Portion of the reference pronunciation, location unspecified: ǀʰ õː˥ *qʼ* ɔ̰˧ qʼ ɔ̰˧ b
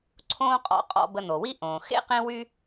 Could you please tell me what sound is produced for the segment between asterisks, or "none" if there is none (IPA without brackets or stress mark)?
qʼ